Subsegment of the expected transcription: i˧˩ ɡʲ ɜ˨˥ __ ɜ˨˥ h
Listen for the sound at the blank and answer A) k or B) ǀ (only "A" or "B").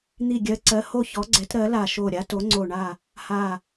B